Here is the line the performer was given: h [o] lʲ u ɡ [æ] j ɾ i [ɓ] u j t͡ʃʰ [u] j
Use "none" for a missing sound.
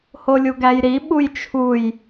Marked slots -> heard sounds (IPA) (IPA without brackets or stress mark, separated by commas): o, æ, ɓ, u